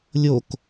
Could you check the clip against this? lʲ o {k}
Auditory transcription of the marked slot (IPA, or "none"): k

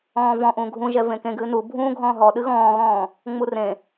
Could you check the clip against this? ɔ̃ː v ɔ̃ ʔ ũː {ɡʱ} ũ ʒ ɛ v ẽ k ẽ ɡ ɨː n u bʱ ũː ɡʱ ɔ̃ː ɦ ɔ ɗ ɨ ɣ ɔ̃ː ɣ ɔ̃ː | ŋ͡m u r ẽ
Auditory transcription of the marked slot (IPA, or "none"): ɡʱ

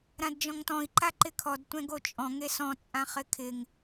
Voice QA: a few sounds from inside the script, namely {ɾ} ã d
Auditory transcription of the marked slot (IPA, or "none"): ɾ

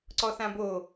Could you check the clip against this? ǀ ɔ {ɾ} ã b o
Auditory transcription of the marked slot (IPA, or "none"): θ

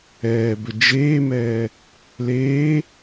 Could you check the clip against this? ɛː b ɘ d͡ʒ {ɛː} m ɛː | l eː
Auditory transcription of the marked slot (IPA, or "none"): eː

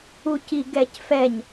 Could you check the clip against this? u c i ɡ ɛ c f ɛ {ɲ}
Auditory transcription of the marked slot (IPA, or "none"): ɲ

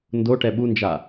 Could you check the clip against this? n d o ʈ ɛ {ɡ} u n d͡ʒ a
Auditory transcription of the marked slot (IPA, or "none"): ɓ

